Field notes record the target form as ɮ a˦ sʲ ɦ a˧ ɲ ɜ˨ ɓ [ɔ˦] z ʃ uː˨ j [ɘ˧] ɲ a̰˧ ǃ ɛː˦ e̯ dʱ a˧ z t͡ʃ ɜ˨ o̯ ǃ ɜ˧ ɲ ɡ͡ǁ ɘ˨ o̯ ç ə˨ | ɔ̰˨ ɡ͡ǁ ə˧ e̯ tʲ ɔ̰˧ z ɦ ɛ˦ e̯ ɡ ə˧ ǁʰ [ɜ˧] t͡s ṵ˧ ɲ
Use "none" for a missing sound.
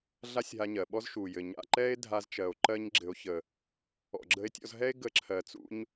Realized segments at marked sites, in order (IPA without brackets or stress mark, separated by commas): ɔ˦, ɘ˨, ɜ˨